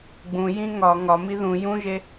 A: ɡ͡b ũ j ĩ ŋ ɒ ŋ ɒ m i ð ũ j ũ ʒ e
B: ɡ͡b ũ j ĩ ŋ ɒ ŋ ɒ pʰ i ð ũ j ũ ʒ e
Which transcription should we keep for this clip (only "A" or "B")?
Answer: A